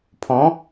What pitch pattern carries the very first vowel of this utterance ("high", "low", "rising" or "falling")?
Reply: rising